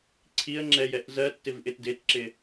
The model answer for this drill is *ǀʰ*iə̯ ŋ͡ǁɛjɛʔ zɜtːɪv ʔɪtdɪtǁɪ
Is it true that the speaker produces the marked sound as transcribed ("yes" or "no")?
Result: yes